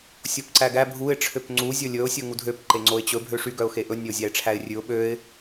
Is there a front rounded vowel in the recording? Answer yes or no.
yes